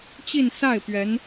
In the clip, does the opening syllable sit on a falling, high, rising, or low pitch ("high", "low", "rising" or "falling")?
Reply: falling